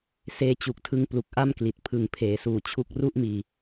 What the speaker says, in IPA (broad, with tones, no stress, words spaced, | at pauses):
seː˧t͡ɕu˨˩k̚tʰɯ˧ŋplu˨˩k̚ ʔa˥˩mkli˨˩t̚ pʰɯ˨˩ŋpʰeː˩˦suː˨˩t͡ɕʰu˦˥k̚ ru˥˩ʔmiː˧